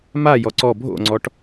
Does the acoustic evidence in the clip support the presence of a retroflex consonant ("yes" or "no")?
yes